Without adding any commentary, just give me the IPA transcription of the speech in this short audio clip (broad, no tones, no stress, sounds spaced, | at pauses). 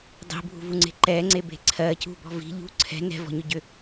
dˤ i̤ bʱ ṳ v u ŋ͡ǀ e̤ ǃ ɛ ŋ͡ǀ e b e̤ ǀʰ ɜ c ṳ b ɔ̤ v i̤ ʎ ṳ ǀʰ ɛ̤ n ɛ̤ v ɔ̤ ɲ ʏ ɟ ʏ